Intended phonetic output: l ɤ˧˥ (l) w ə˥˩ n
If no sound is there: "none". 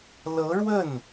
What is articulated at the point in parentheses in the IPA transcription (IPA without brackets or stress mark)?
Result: ɻ